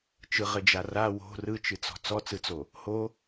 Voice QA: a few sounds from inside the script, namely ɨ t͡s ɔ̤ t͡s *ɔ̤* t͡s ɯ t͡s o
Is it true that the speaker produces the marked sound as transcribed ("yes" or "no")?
no